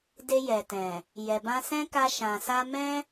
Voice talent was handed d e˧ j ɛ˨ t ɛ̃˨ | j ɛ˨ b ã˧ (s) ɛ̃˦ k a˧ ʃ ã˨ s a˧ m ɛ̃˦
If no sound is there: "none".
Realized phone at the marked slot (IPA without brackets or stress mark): s